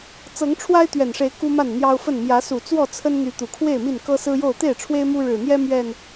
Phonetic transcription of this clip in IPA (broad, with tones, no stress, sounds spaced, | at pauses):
t͡s ɤ˨˦ ŋ ʈ͡ʂʰ w a˦ ɪ̯ t̪ ɥ ɛ˨˩ n ʂ e˨˦ ɪ̯ k u˦ m a˥˨ n n̪ j ɑ˦ ʊ̯ f ə˥˨ n m j ä˨˦ s u˨˩ t͡s w ɔ˥˨ t͡sʰ ə˦ n n̪ y˨˦ t̪ u˨˩ kʰ w e˥˨ ɪ̯ m i˥˨ n k ɤ˦ s ɹ̩˦ j o˥˨ ʊ̯ t̪ e˥˨ ɪ̯ ʈ͡ʂʰ w e˦ ɪ̯ m u˦ ɻ ɻ̩˨˩ n̪ j ɛ˦ m ɥ ɛ˥˨ n